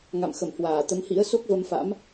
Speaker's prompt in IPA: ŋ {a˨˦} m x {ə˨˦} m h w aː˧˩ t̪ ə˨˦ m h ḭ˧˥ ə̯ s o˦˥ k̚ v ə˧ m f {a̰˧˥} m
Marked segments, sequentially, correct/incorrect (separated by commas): incorrect, incorrect, correct